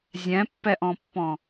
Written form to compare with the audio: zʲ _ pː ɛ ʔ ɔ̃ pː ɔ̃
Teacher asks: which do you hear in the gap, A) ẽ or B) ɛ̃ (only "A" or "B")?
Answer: B